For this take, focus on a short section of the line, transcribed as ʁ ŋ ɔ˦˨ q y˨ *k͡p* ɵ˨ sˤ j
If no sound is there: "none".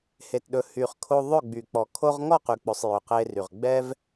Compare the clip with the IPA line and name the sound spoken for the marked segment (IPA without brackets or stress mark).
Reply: k͡p